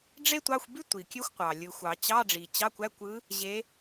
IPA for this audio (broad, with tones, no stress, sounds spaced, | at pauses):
ɖ͡ʐ e˥ tʷ ɑ˧˥˧ xʷ b y˥ tʷ i˨˩ kʲ ø˥ xʷ qʷ ɑ˨˩ lʲ ɯ˨˩ xʷ ɑ˨˩˦ t͡ɕ ɑ˧˥˧ ɖ͡ʐ i˨˩ t͡ɕ ɑ˧˥˧ kʷ æ˧˥˧ kʷ ɯ˧˥ | ʑ e˧˥